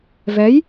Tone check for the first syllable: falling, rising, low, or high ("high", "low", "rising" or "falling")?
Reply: rising